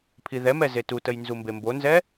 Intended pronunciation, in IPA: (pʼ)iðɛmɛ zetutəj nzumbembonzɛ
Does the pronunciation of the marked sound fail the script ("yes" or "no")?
yes